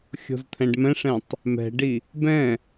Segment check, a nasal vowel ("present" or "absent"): present